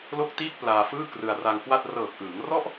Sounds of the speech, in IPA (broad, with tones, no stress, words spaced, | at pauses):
lo˥˩k̚tiː˥˩k̚ plaː˧fɯː˥˩ krɯ˧a̯ra˧ŋkwa˥˩t̚ rɤː˨˩k̚ʔɯː˩˦ŋ rɔ˥˩ʔ